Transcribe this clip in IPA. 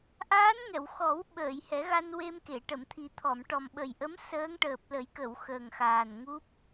ʔ aː˧˥ n ŋ ɛ˨˩˨ w x ɔ˨˩˦ w ɓ əː˨˩˨ j h ɛ˨˩˦ ɣ a˧ n w e˧ m k e˨˩˨ ʈ ə˨˩˨ m t̪ʰ i˨˩˦ t̪ʰ ɔ˨˩˨ m ʈ ɔ˨˩ m ɓ ə˨˩ j ʔ ə˧˥ m s əː˧˥ ŋ ʈ əː˨˩ p̚ l ə˨˩˦ j k ə˨˩˨ w x əː˨˩ ŋ x aː˨˩ n ŋ u˦˥ p̚

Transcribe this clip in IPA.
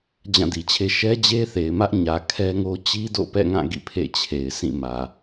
d͡ʑ ã˦˨ d i˨ t͡ɕʰ e˦ ʃ ɛ˦ d͡ʑ e˦ θ e˨ ɪ̯ m ä˦ ʔ ɲ ä˨ kʰ ɛ˦ ŋ o˦ t͡ɕ i˦ d o̰˦˨ p ɛ̰˦˨ ŋ ã˦˨ ɡ ḭ˦˨ pʰ ḛ˦˨ t͡ɕʰ e˨ ɪ̯ sʰ ĩ˦˨ m ä˨

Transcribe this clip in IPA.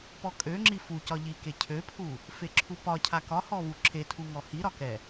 p ɔ kʼ ø ŋ͡ǁ i f u c ɒ ʎ i k e cʰ ø pʰ u | f e ǁʰ u p ɒ cʰ a k ɒ h ɔ v u ǁʰ e tʰ u ŋ ɔ h i ɾ ɒ k ɛ

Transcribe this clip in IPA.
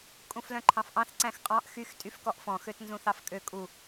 kʼ ũ f l œ̃ ǃʰ ɑ̃ f ʔ ɑ̃ θ ǀ æ̃ x qʼ ɑ̃ ʔ x y x tʼ y f k ɔ ʔ f ɔ̃ x ø t n z ũ θ ɑ f kʼ ø kʼ u

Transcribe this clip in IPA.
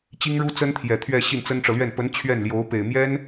t͡ɕ i˥ ŋ ɻ u˥ t͡s ə˥ n t̪ʰ j ɛ˨˩ t̪ʰ ɥ ɛ˥˧ ɕ i˥˩ n t͡s ə˥ n ʈ͡ʂ ɤ˨ l ɥ ɛ˥˩ n p ə˧˥ n t͡ɕʰ ɥ ɛ˥˩ n l j o˧˥ ʊ̯ p e˨˩ ɪ̯ m j ɛ˥ n

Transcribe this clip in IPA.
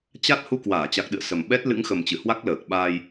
t͡ɕ a˦˥ t̚ h u˧ k w aː˧˩ t͡ɕ a˨˩ k̚ ɗ ɨ̰˧˨ ə̯ s ə˨˩ m ɓ ɛ˦˥ t̚ l ɨ̰˧˥ ŋ x ə˨˩ m t͡ɕ ɨ˧˩ h w a˦˥ k̚ l əː˨˩ k̚ ɓ aː˧ j

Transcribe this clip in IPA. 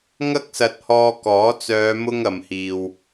ŋ ɐ˥ k̚ s ɐ˧ t̚ h ɔː˧ k ɔː˨˥ t͡s œː˨˧ m ʊ˧ ŋ ɐ˨ m h iː˨ w

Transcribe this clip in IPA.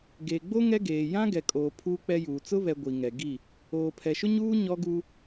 ɡ eː˨ ɡ͡b o˦ ŋ ɛ˦ ɡ eː˨ j ã˦ ɡ ɛ˨ kʼ oː˨ pʰ uː˦ k͡p ɛ˦ j uː˨ t͡s ʊ˦ β ɛ˨ ɡʷ i˨ ŋ ɛ˨ ɡ i˦˨ | oː˨ pʰ ɛ˨ ʃ ʊ˦ ɲ uː˦ ɲ ɔ˦ ɡ u˦

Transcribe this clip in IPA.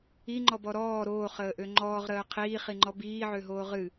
i ŋ͡ǃ ɔ b ɔ ɾ ɔː ɾ oː χ əː ʔ ø ŋ͡ǃ ɔː ʁ ɾ əː qʰ iː χ i ŋ͡ǃ ɔ b iː ʕ ø ɦ oː ʁ ɨ

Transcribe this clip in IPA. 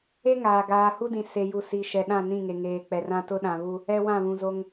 e˦ ŋ aː˨ ɡ aː˨ h u˦ d ĩ˨ s e˨ j u˨ s i˨ ʃ ɛ˨ ɗ ã˦˨ n ĩ˦˨ ŋ e˨ ŋ eː˨ k͡p ɛ˨ r ã˦ t ʊ˦ ɗ ã˨ β u˦ | ɛ˦ w ã˦˨ β ũ˨ z o˦ ŋ

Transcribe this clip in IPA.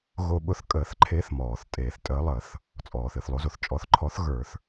ɣ o˦ ɓ ʊ˨˥ θ kʼ əː˨˩˦ θ ǃʰ e˨˥ θ m ɔː˩ θ tʼ eː˨˩˦ θ tʼ əː˨˥ lˠ əː˨˩˦ θ | t͡sʼ ɔː˩ θ ɨ˩ θ lˠ o˨˥ z o˩ θ t͡ʃʼ ɔ˨˩˦ θ ǃʰ ɔ˨˥ θ ɣ ə˞˨˩˦ θ

